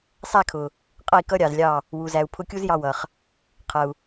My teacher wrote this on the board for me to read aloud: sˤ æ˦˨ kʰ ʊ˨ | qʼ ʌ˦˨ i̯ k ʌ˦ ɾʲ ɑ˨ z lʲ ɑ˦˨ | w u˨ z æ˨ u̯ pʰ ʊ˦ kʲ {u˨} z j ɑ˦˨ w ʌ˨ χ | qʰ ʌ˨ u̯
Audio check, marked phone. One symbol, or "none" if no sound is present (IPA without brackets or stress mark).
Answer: u˦